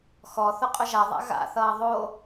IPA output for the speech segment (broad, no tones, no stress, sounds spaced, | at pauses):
x ɔ θ ʊ qʼ ʊ ʒ a ðˤ a̰ ɣ a̰ θ ʌː ðˤ o